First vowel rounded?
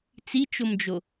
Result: no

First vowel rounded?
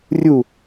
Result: yes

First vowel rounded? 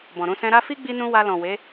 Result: yes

